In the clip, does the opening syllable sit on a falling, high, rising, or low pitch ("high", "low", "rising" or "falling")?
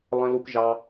low